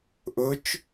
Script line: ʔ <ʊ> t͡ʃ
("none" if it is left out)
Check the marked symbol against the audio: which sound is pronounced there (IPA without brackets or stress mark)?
ʊ